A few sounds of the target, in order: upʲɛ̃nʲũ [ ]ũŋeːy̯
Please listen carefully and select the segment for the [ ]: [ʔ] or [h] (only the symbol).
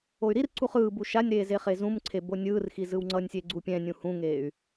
h